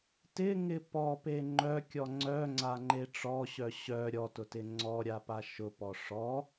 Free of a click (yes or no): no